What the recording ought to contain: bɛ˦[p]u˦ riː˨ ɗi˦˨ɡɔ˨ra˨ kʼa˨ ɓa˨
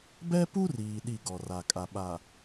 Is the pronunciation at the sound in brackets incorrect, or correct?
correct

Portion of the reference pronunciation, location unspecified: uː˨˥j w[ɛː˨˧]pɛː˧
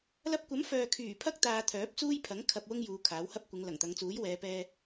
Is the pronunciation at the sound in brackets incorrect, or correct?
correct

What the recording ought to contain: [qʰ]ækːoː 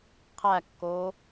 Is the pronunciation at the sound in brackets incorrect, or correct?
correct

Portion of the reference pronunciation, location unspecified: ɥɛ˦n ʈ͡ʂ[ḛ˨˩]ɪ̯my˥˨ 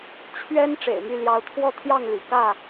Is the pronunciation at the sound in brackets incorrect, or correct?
correct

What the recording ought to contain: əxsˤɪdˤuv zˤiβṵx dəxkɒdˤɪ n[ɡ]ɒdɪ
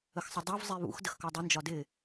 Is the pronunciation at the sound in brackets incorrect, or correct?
incorrect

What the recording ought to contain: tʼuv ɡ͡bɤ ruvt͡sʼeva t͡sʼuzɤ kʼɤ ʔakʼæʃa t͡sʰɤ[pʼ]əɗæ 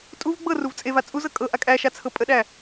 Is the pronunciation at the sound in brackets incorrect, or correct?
correct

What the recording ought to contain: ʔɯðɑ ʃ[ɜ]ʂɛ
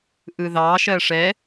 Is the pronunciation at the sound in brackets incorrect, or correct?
correct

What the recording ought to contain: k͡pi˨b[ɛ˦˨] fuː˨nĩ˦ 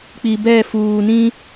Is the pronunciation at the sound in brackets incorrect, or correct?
correct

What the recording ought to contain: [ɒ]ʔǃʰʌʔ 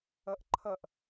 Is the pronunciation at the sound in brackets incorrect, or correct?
incorrect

